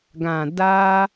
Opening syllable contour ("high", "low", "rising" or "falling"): low